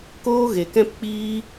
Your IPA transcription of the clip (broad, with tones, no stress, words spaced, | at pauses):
koː˦ɣe˨kɛ̃˦pk͡piː˦